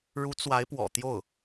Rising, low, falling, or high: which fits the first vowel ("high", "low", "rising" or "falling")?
rising